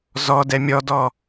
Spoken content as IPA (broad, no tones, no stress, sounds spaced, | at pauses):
z ɔ d ɛ mʲ ɔ d ɔ